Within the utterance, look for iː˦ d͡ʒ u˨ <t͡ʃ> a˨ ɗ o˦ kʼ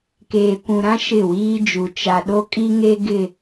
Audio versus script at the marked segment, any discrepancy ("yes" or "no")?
no